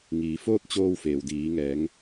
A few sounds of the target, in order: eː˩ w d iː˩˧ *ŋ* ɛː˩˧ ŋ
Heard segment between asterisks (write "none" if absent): ŋ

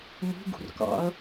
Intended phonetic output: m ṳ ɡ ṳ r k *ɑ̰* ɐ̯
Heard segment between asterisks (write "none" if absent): ɑ̰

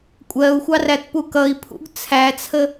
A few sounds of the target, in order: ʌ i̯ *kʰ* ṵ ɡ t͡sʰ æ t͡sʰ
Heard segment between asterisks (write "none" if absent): pʰ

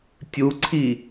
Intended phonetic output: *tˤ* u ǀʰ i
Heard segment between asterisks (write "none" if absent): tʲ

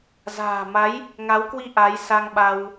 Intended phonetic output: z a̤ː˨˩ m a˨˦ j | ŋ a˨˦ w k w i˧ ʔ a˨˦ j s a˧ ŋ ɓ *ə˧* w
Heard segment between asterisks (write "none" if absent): a˧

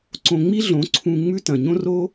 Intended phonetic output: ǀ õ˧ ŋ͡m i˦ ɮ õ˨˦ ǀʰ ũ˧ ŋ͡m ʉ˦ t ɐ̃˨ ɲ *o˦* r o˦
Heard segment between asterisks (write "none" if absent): õ˦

